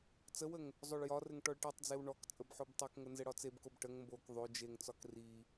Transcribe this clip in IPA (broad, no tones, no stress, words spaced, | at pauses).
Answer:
t͡səwəŋ | zˤoɭjɒrɘŋ ʈɔɭʈitˤd͡zew ɳɔk t͡sʼəbħobtˤokŋə nzɘɽɒt͡sebkob ʈəŋ mbok ðˤo d͡ʒeŋt͡sɒk ri